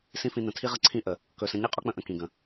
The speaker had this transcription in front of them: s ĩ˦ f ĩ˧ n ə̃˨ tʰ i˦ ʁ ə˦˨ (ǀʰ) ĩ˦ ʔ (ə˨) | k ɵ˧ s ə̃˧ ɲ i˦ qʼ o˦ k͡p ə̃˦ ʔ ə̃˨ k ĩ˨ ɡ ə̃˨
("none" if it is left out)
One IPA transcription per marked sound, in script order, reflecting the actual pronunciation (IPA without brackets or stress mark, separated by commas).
ǀʰ, ə˨